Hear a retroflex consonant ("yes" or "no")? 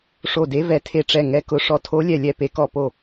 yes